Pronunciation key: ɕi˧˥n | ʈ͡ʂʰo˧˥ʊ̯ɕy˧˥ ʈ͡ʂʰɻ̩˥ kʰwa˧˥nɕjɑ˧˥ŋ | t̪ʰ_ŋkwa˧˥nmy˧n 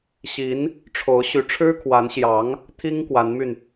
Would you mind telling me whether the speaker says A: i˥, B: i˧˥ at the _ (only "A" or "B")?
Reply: A